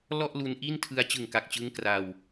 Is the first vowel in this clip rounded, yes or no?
yes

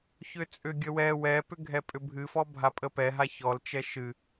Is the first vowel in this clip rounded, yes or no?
yes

